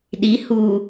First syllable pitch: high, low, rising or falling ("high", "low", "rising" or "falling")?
rising